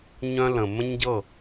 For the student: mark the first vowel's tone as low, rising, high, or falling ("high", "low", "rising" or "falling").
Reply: high